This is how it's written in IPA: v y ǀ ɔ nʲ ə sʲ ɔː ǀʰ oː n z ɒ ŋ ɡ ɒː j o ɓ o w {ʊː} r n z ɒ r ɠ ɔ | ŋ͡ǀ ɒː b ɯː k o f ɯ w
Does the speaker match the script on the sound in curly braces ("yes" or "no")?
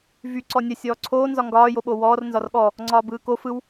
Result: no